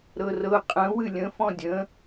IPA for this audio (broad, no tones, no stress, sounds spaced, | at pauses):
ɾ ɤ r ɤ qʼ ə̃ w ɨ lʲ ə̃ f ɔ̃ dʲ ə̃